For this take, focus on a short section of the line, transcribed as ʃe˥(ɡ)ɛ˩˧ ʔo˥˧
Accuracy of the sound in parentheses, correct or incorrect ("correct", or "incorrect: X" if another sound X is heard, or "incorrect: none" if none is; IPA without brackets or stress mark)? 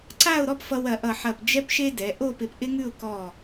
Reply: incorrect: d